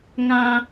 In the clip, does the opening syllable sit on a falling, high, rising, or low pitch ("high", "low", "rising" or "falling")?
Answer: high